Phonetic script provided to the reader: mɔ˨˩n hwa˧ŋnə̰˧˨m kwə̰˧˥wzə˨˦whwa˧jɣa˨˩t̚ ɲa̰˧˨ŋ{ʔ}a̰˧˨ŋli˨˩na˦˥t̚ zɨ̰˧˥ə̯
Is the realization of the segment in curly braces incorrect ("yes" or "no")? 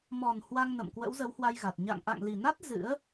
no